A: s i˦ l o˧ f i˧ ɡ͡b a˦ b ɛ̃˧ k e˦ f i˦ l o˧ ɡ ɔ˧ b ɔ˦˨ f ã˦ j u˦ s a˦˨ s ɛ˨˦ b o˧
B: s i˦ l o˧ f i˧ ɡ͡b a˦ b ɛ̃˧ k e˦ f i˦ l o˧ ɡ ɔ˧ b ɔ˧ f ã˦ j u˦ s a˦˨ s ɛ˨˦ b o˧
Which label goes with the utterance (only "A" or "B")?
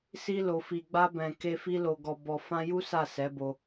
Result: B